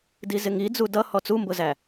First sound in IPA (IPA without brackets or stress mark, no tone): d